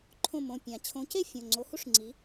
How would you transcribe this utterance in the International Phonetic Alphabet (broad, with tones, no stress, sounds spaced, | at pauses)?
ǃʰ õ˦˨ m õ˩˧˩ pʲ ã˨˩˦ t͡ɕʰ õ˨˥ c e˥ fʲ õ˩˧˩ ŋ͡ǀ o˨˥ h u˥ ʂ ŋ͡ǀ i˨˥